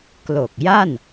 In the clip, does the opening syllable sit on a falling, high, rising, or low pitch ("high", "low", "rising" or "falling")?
low